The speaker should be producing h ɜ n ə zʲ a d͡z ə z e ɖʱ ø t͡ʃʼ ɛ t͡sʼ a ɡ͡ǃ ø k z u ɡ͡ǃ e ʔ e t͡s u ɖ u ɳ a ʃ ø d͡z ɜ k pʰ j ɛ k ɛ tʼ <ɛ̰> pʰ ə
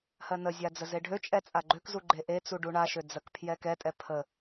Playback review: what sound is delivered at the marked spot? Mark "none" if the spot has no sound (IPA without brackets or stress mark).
ɛ